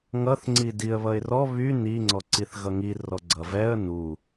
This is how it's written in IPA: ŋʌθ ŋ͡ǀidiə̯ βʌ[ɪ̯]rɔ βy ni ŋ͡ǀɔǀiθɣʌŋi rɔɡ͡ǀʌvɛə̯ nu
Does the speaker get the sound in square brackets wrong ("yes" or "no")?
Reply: no